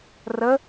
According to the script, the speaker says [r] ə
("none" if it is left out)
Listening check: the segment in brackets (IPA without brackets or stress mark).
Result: r